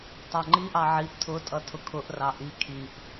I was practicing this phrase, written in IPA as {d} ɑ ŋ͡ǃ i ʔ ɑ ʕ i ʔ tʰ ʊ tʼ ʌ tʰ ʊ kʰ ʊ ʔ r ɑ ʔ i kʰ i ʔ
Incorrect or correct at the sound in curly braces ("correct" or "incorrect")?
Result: incorrect